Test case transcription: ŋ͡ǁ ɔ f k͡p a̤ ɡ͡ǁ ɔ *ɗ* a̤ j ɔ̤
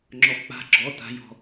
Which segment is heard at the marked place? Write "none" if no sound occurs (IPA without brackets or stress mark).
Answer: t